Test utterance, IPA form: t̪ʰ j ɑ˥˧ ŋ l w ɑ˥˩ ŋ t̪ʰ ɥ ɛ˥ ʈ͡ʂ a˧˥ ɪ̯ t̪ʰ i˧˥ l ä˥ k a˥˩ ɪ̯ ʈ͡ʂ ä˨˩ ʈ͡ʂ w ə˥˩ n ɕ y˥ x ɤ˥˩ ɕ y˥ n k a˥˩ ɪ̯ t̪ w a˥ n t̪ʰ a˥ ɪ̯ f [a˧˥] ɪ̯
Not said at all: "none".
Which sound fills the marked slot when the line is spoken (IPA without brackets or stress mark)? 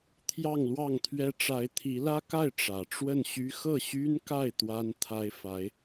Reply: a˧˥